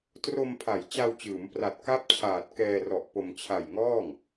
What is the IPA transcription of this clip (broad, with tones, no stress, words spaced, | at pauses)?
tro˧mpʰa˩˦j t͡ɕa˧wt͡ɕɯː˩˦mpra˨˩t̚ ka˥˩p̚t͡ɕʰaː˨˩t̚kɛː˧rɔ˨˩ʔ po˧m t͡ɕʰa˨˩j ŋɔː˥˩ŋ